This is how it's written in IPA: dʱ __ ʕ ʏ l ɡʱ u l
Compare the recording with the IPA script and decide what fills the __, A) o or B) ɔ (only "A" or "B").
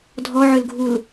B